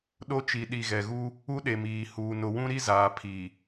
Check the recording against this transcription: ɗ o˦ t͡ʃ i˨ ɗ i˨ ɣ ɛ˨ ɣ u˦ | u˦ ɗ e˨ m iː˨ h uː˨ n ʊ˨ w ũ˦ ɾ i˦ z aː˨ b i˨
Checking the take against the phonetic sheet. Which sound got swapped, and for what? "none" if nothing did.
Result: b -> pʰ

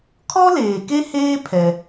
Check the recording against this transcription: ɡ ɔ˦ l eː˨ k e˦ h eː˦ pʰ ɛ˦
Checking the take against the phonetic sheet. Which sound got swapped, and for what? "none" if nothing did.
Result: ɡ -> kʰ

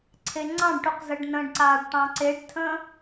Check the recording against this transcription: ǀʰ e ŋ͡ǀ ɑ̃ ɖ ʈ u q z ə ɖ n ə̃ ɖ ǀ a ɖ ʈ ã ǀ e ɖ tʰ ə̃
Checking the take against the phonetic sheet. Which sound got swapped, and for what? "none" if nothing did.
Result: ã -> ɑ̃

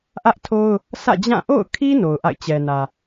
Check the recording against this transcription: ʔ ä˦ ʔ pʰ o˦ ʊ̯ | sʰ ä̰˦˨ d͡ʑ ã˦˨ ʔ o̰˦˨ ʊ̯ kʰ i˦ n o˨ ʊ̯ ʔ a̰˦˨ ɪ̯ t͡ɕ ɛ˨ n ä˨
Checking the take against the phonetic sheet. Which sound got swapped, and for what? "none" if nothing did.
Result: pʰ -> tʰ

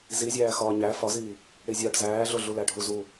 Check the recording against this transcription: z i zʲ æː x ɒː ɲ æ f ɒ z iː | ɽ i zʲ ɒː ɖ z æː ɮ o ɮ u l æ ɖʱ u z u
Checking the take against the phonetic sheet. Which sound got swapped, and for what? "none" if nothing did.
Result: none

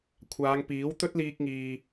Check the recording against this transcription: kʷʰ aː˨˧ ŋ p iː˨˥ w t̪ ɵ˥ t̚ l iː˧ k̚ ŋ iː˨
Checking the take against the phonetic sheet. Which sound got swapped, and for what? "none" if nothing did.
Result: none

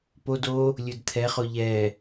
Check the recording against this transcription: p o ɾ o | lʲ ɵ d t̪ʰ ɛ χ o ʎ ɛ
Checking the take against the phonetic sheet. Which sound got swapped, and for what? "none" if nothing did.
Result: ɾ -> d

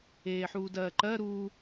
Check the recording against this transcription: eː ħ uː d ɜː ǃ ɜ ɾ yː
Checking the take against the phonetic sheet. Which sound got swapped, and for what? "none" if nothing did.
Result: yː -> uː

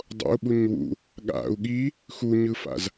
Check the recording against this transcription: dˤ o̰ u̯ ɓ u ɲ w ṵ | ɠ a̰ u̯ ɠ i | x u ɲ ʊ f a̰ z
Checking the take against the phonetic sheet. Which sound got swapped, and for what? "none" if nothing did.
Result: ʊ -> ɯ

